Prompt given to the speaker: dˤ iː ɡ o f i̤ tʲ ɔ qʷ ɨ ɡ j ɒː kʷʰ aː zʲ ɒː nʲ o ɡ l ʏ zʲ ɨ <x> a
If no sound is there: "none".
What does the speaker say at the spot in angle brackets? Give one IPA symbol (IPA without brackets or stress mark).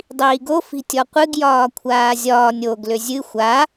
xʷ